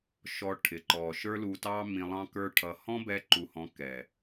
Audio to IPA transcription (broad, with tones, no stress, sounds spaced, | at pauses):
ʃ ɔ˧ ʈʰ ɪ˨ ǃ ɔ˨ ʃ ə˞˦ l u˧ t ɑ˦ m ĩ˧ lˠ ɑ̃˦ k ə˞˦ ʈʰ ʌ˧ h ɔ̃˦ b ɛ˧ ǃ u˨ h ɔ̃˨˦ k ɛ˨